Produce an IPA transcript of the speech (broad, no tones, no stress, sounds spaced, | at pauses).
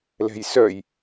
l ɛ̤ j s œ j